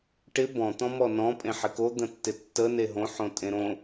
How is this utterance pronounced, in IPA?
ʈɪ bɔ̃ t̪ɔ̃mɔnɔ̃ pʼẽħɪko d̪ə̃tːɪtːə neɦõ ħõtʼẽɾõ

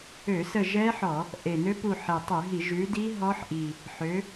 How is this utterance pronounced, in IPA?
ø˧˩˧sə˦˨ʒɛ˦˥ħɔ˧˩˧ | ʔe˨˩nø˦˥ pu˦˨ħe˨˩ tˤʉ˧˩˧ɦi˧˩˧ ʒʉ˨˦di˦˥ ɦɔ˦˥ħʔi˨˩ | ħø˨˦

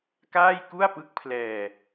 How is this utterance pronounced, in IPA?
kaː˥˩jku˥˩a̯pɯ˦˥k̚pʰlɛː˧

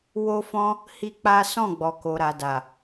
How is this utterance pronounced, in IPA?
wo˦fɔ̃˦ | hi˦k͡pa˦ sɔ̃˦˨ɡ͡bɔ˨ ko˨ɾa˨da˨

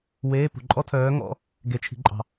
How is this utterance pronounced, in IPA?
weː˧˥˧pṳ˨ ǃʼɔ˥tʰœː˧˥ŋɔ̰˧˥˧ | ɡe˨t͡ʃʰi̤˨ǃʼɑ̤˨

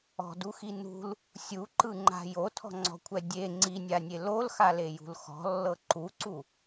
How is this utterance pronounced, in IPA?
ɔ̤duxi nṳl | sʲuǃɯŋ͡ǃa̤ jotʰɔ̤ŋ͡ǀɔ̤kʷʰɛ dʲe ŋ͡ǀinʲanʲe lolxalejṳl xɔ̤lːɤ ǃuǀu

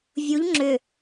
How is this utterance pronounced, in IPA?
vʲuʎ ŋ͡ǁʏ

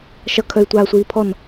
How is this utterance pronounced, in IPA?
ʃʌkʰœy̯tʷaːsʷiː pʰɔn

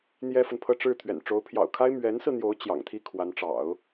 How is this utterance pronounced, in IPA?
n̪jɛ˥fə˨npʰɤ˥˧ ʈ͡ʂɻ̩˥˩ t̪ʰɥɛ̰˨˩n ʈ͡ʂo˧˥ʊ̯pʰjɑ̰˨˩ʊ̯kʰa˥ɪ̯ mɥɛ˧˥nsɹ̩˧n̪jo˧˥ʊ̯ t͡ɕjɑ̰˨˩ŋt̪ʰi˥ kʰwa˧˥nʈ͡ʂɑ̰˨˩˦ʊ̯

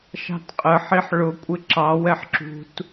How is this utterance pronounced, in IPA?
ʃɑ̤tqʼəħiħ ɭʊ kʷʼɪǁɑwɛħ ǁṳt

